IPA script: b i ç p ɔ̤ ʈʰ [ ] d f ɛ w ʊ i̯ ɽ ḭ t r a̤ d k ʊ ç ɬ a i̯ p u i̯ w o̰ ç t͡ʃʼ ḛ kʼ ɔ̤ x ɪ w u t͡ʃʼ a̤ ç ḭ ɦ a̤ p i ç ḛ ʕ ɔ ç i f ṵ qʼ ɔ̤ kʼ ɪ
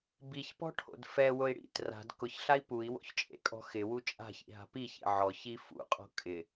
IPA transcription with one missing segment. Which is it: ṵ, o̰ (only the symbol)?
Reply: o̰